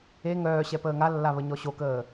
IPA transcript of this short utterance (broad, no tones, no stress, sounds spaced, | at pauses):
e ŋ œː ɕ ɛ p əː ŋ a lː a β ə ɲ ɔ ɕ o k əː